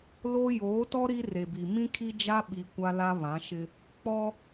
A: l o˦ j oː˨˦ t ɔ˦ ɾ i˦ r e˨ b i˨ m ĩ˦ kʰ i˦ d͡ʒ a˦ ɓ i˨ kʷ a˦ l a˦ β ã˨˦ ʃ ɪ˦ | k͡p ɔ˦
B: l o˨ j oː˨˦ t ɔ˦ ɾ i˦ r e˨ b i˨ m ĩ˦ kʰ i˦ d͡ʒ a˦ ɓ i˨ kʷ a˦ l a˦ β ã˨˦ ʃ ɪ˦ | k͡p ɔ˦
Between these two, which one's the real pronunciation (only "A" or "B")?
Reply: A